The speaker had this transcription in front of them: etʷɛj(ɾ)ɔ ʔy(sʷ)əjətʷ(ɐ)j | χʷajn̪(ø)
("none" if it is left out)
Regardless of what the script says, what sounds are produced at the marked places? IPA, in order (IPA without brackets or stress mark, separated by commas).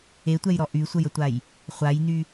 ɾ, sʷ, a, y